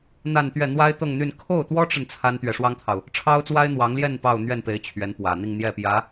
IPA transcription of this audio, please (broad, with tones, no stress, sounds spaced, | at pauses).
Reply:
n̪ a˥˧ n t̪ ɥ ɛ˥˩ n̪ w a˥ ɪ̯ t̪ ɤ˥˧ ŋ n̪ y˥˧ n kʰ o˥˩ ʊ̯ t̪ w ɔ˥ ʈ͡ʂ ə˨ n t͡sʰ a˥ n t̪ ɥ ɛ˨ ʂ w ɑ˥ ŋ t̪ʰ ɑ˨ ʊ̯ | ʈ͡ʂʰ ɑ˥ ʊ̯ t͡s w a˥ ɪ̯ n̪ w ɑ˧˥ ŋ l j ɛ˥˧ n p ɑ˥˧ ʊ̯ n̪ ɥ ɛ˥˩ n p e˧˥ ɪ̯ t͡ɕʰ ɥ ɛ˧˥ n p w ä˨˩ n̪ i˥˧ ŋ n̪ j ɛ˥˩ p j ä˧˥